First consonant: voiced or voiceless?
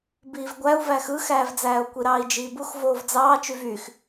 voiced